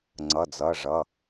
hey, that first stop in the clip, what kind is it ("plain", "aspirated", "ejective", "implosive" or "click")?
click